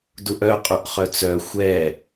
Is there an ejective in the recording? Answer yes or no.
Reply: yes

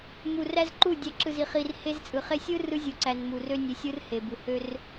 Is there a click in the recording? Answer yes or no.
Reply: yes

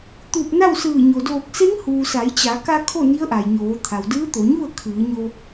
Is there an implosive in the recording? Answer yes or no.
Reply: no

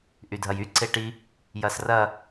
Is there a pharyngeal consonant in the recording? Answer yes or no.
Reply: no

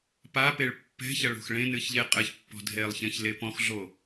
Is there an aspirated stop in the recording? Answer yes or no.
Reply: no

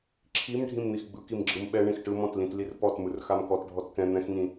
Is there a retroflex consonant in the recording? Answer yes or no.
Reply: yes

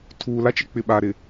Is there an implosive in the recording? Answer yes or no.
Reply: yes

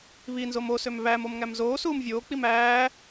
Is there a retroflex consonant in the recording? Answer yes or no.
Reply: no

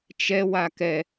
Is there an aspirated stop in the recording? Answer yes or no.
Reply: no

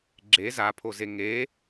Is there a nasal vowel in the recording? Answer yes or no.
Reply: no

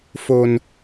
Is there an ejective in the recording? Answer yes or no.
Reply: no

